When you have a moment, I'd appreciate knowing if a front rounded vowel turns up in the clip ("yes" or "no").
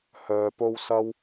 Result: yes